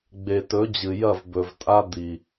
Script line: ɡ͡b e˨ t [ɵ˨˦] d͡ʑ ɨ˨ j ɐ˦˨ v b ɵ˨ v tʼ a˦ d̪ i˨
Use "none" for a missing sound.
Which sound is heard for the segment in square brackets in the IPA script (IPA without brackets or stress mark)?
ɵ˨˦